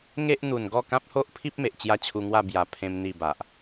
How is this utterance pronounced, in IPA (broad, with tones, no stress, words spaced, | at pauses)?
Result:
ŋe˦ʔn̪u˨˩n ɡɔ˥˧kã˦p̚ho˦ʔpʰi˦p̚ me˨ʔt͡ɕja˥˧t͡ɕʰu˧ŋwa˥˧ bja˨˩ pʰẽ˦mn̪i˥˧ba˨ʔ